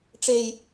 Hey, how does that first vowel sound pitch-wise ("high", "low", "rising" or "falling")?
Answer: low